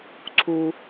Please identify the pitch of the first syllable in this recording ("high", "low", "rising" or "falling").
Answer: high